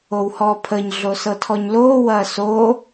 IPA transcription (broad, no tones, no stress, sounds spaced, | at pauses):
o w h ɔː pʰ ə ɲ ɮ o s ɤ tʰ ɔ ɲ l oː w ɐː s o